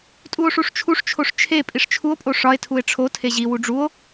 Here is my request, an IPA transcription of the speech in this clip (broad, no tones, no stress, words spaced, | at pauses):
tʼuo̯ʂuʂt͡ʃʰuʂt͡ʃʰoʂ t͡ʃʰe pʼiʂt͡ʃʰuo̯pʼo ʂɒe̯tʰue̯ ʈ͡ʂʰo tʰeʑiwu ɖ͡ʐuo̯